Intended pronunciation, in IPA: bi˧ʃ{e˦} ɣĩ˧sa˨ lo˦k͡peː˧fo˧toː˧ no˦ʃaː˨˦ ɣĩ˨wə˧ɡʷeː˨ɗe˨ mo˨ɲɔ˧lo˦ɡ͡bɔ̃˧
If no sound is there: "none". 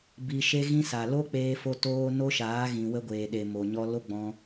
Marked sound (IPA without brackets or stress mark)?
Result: e˦